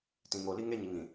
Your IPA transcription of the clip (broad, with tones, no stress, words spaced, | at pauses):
tĩ˨ŋo˨li˦ ŋe˦ɲi˨ŋ ĩ˨